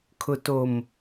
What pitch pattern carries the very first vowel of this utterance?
low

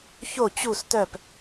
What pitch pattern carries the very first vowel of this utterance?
falling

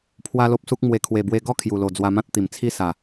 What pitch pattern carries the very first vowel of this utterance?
high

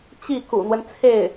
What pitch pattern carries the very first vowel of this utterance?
falling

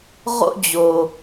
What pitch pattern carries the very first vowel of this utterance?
high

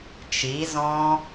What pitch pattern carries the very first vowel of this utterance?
rising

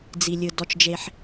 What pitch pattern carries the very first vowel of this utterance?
low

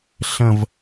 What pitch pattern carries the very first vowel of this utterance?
falling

